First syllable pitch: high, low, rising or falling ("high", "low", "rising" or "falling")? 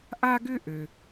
high